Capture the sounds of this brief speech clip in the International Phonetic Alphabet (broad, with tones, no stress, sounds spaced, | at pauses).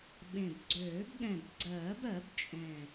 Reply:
ɓ ẽ˨˩ b ɡ͡ǀ øː˨˩˦ b ɠ ɛ̃˨˩ b ɡ͡ǀ ɜː˨˩˦ b ɜ˨˩˦ b t͡ʃʼ ɛ̃˨˩